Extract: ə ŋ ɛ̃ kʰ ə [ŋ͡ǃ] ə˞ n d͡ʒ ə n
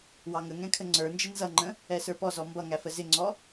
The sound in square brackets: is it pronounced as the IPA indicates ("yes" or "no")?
no